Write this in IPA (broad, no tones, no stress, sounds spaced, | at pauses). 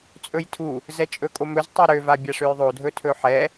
t͡sʼ ɵ j tʰ u | z ɛ t͡ʃʼ ɵ kʼ o m ɵ z tˤ ɛ ɾ ø v a bʲ a ʂ ø j ðˤ o dʱ ɵ tʰ ɵ ħ ɛ